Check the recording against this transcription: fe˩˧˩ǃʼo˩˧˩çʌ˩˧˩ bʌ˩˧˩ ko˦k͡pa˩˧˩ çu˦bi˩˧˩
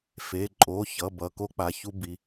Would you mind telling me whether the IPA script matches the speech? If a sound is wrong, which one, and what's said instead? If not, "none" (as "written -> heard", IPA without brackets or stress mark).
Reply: none